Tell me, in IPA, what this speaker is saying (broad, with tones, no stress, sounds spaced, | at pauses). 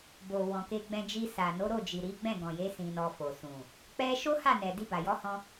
b o˨ w ɔ̃˨ k e˧ ɡ͡b ɛ̃˧ d͡ʒ i˧ s a˨ n o˨˦ ɾ o˦˨ d͡ʒ i˨ ɾ i˨˦ ɡ͡b ɛ̃˦˨ ɡ ɔ̃˨ j e˨˦ s ĩ˧ n ɔ˧ f o˨ s ũ˨ | k͡p ɛ˦ ʃ o˦ h a˦˨ n ɛ˨ d i˧ b a˨ j ɔ˨˦ h ɔ̃˧